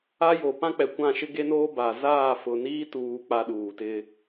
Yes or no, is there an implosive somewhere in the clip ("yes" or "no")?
yes